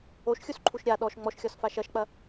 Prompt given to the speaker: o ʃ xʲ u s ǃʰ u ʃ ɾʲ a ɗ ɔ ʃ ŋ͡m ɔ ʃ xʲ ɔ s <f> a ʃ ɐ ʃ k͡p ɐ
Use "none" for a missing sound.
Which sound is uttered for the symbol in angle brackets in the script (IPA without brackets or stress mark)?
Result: f